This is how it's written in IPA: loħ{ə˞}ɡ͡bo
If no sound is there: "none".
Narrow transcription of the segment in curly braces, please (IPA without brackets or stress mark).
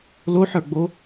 ə˞